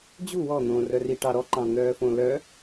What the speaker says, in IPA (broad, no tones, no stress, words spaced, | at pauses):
d͡ʑu wɔn̪õːrœ riʈɑ ɾɔǃɑ̃n̪œːfõ lœ